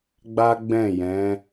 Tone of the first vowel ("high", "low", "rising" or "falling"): high